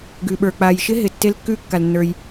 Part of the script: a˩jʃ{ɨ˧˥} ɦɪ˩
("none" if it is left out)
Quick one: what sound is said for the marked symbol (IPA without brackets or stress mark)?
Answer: ɪ˧˥